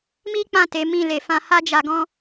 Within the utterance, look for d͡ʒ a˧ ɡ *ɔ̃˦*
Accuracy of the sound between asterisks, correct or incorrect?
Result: correct